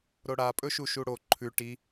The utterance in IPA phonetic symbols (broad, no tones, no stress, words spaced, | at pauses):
ɾoɽa pʼɵʃuʃuɽo ǃʰʉ ʈi